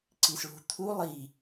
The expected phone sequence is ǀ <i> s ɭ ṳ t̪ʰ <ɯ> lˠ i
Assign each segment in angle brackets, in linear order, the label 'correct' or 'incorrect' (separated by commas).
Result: correct, incorrect